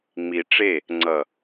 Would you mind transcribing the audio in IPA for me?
ŋ͡mi˨ ʈ͡ʂe˦˨ | ŋ͡ǀʌ˨

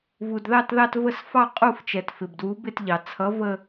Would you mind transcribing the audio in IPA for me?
vu˩dðɑ˥˧tðɑ˥˧tvə˥˧s fɑ˥˧ qʼu˥˧ft͡ʃɛ˩tfɪ˩bdwu˨˥ bɪ˥˧tʎɑ˩ t͡sʰʌ˨˥və˥˧

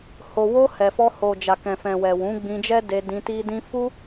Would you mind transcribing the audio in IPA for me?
ho˨wo˧ hɛ˨fɔ˧ ho˨ d͡ʒa˨kɛ̃˨fɛ̃˨wɛ˨ wũ˨˦ɡ͡bĩ˧d͡ʒɛ˦ de˧dĩ˧ti˦dĩ˦ fu˦

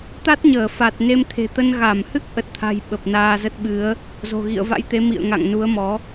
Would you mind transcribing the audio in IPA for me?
t̪a˦˥t̚ɲəː˧˩ fa˨˩t̚ ne˧mt̪ʰe̤˨˩t̪ə˧n ɣa˧˩mhɨ˦˥k̚ ʔə˨˩t̚t̪ʰa̤˨˩j ɓə˨˩p̚naː˧zə˦˥t̚ ɓɨ˨˦ə̯ | zo̤˨˩ɣḭ˧˨ə̯va̰˧˥jt̪e˨˦ mḭ˧˨ə̯ ŋa̰˧˨ŋnu˨˦ə̯mɔ˨˦

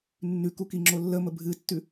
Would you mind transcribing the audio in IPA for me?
nːʉkukiŋ͡ǁo lːəmə bʱɨtːʉ

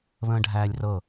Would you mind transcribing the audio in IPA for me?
βə̃ːɖʱæːlʲrɤ

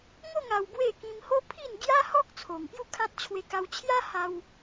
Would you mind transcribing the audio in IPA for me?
ŋo˥˧ŋ a˧wbwe˥˧ kĩ˧m ho˦pʰi˥˧n ɡja˦hɔ˦k̚ t͡sʰo˨˩ŋpju˥˧kʰã˦t̚ t͡ɕʰwe˧ka˧wt͡ɕʰja˦ha˧w

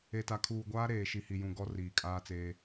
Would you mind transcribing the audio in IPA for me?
e˨ta˨kʰuː˨ɡʷaː˦ ɾeː˨ʃi˨hi˨jũ˨ ɡɔ˦riː˨kʼaː˦t͡seː˦

